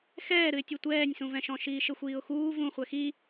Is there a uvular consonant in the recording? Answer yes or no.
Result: yes